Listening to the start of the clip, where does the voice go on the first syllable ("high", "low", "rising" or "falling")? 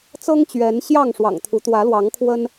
high